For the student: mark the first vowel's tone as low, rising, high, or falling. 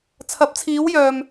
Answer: rising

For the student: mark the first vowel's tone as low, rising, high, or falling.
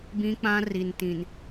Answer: high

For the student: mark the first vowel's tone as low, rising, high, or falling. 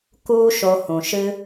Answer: high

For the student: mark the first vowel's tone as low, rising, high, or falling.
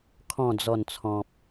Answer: low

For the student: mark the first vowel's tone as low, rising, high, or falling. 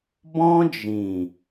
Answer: high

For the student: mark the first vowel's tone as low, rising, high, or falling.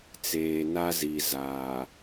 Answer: low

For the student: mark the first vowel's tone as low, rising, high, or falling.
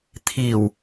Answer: low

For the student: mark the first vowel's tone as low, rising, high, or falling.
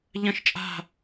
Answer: falling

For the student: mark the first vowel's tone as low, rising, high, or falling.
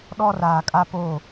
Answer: high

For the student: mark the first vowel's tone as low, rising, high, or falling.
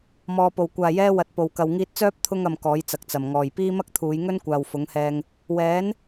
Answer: low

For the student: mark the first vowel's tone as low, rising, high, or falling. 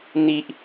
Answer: high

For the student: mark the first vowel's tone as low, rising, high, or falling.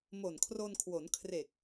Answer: low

